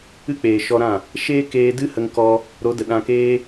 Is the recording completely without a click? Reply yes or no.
yes